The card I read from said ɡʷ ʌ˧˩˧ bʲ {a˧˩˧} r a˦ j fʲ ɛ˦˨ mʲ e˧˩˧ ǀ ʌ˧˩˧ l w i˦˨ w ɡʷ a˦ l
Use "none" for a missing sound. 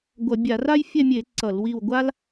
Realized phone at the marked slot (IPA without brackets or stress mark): a˧˩˧